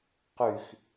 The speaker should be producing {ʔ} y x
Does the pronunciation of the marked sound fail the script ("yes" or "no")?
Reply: yes